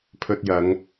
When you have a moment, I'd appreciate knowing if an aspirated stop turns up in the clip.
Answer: yes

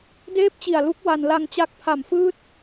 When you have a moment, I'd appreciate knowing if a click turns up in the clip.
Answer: no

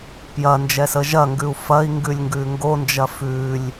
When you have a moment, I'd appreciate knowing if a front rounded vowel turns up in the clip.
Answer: no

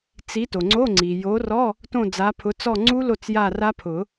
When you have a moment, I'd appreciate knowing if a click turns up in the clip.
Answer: yes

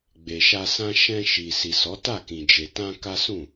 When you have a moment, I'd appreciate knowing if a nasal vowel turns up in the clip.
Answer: yes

